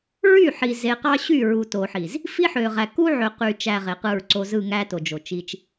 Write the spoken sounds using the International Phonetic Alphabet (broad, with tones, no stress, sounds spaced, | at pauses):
ɹ y˦˨ ħ i˨ z e˨ q ɑ˦ ɕ y˦˨ ɹ u˨ t o˨ ħ i˨ z | f i˦ ħ ø˨ ʁ æ˨ k u˦ ʕ ø˨ q y˨ t͡ʃ æ˨ ʁ e˨ q ɯ˦˨ ɹ ǀ o˦ z ɯ˦˨ ŋ æ˦ t o˨ d͡ʒ o˨ t͡ʃ i˦ t͡ʃ